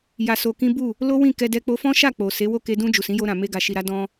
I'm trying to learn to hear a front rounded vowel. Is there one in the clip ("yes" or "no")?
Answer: no